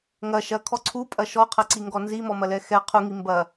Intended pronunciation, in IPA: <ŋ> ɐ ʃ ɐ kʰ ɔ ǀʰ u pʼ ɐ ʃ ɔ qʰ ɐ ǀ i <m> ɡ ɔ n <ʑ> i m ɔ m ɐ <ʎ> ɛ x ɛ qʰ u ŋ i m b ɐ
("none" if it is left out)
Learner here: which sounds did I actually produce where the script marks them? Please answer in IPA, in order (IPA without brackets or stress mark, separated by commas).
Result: ŋ, ŋ, z, l